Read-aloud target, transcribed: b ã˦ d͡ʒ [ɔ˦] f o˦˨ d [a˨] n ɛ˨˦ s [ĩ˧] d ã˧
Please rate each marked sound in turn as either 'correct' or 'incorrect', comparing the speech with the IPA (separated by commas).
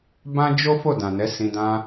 incorrect, incorrect, correct